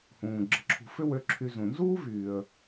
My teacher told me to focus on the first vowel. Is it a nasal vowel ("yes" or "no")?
yes